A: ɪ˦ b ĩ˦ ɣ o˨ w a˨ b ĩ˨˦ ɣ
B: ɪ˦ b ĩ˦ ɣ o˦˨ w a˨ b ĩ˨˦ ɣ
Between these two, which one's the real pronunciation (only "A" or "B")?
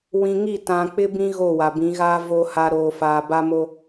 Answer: B